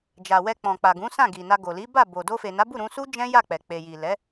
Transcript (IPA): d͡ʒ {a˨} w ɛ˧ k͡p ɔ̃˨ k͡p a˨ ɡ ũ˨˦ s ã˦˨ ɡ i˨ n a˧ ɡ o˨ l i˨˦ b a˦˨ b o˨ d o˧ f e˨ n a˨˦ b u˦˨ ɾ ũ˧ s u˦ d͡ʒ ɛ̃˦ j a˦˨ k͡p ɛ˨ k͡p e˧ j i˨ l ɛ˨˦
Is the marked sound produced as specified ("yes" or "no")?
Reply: yes